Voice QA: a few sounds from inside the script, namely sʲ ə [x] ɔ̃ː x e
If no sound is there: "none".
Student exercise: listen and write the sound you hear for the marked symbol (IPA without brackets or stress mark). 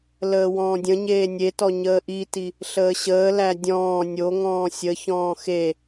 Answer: ç